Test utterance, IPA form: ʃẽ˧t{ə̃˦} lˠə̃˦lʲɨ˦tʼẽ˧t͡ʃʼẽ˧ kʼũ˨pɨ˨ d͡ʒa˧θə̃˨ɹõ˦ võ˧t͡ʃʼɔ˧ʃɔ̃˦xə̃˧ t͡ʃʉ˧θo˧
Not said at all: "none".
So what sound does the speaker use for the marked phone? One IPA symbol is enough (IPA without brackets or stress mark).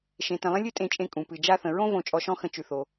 ə̃˧